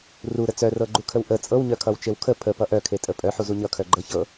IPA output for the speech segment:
r u ɾ ə t͡s œ r ɤ ɡ͡ǃ u kʰ ə w ʔ ə t͡sʼ ɤ w ɲ œ kʰ ʌ w t͡ʃ e w kʰ ə pʰ ə p ʌ ʔ œ kʰ e tʼ ə pʼ œ ħ u z u ɲ ʌ kʰ œ ɡ͡ǃ ɤ ç ɤ

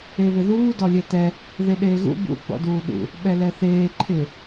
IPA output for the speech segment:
e β ɪ ð uː d ɔ lʲ ɛ t ɛ | ð e ɗ eː ɣ ṵ b ṵ ɡ͡b ɔ̰ d uː ɗ ṵ | ɓ ɛ l ɛ θ eː ǃʰ ɪ

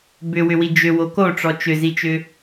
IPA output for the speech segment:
b ʏ w ʏ w i d͡ʒ ʏ w o k o ʈ͡ʂ ɔ t͡ʃ ʏ z i t͡ʃ ʏ

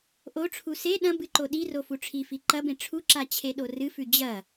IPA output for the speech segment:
ʔ o ʈ͡ʂʰ u s e ɗ ɐ̃ b ɨ ǃ o ɗ i r o f u ʈ͡ʂʰ i f i ǃ ɐ b ẽ ʈ͡ʂʰ u ǁ a t͡ɕʰ e ɗ o r ɨ f ʉ d͡ʑ ɐ

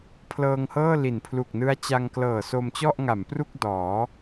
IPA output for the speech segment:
pʰ l ɤː˧ ŋ h ɤː˥˩ l i˩˦ n pʰ l u˨˩ k̚ n ɯ˦˥ a̯ t͡ɕ a˧ ŋ k l ɤː˨˩ s o˧ m t͡ɕ ɔ˥˩ ʔ ŋ a˩˦ m p r u˥˩ k̚ d ɔː˩˦

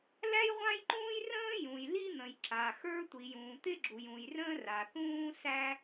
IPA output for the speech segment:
l æ˥ j ʁʷ ã˥ j ǃ ũː˥ j r ə̃ː˥ j ũ˩ j l i˥ n̪ ə̃˩ j ǁ a˩ x ə˞˥ tʷ i˩ j ũː˩ t̪ ɪ˥ ɡ͡ǁ u˩ j ũ˩ j r ə̃ː˥ r a˩ θ ũː˥ s æ˥

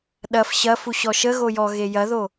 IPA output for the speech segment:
ɗ ɐ f ɕ ɐ f u ɕ ɔ ʃ ə ɣ o j ɔ ɣ e j ɐ ð o

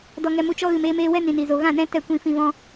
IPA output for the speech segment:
d ɔ˧ ŋ ɛ˧ m u˧ t͡ʃ ɔ˦ ɣ ɨ˨ m eː˧ m eː˧ w ɛ˦ n ĩ˨ n i˨ z o˨ ɣ ã˦˨ n ɛ̃˦ t ɛ˦˨ kʷ ĩ˧ f ĩ˧ v ɔ̃˦

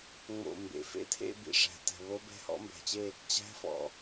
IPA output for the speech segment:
ŋ͡m o̰˧˩ m b ḛ˩ f ḛ˥˨ tʰ ḛ˥˨ b ḭ˩ ʂ æ̤˩ t ɛ̤˩ β o˧˥ b ɛ̤˧˥ h ɔ̰˧˥ m b æ̤˩ t͡ɕ e˥˨ | t͡ɕ æ̤˧˥ f ɔ̰˩

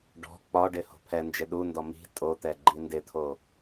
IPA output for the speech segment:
ɖ ɔ̤ k͡p ɒ ɖ ɪ h o̤ pʰ ɛ n d͡ʒ ɪ ɗ u n d ɔ m i̤ tʼ o t̪ ɛ ɡ͡ǃ i n d ɪ t̪ʰ o

